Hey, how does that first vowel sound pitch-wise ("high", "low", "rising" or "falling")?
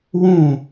falling